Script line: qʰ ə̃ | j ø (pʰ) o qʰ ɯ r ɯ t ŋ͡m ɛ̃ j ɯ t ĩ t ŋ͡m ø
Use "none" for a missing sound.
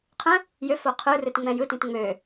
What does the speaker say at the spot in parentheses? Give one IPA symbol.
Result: f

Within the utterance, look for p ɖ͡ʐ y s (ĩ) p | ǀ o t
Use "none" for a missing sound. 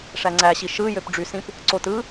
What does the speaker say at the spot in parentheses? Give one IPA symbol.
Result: ĩ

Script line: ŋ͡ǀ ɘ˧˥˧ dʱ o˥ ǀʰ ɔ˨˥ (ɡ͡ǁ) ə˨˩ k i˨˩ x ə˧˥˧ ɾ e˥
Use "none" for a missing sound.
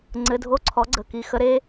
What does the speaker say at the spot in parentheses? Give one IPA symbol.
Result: ɡ͡ǀ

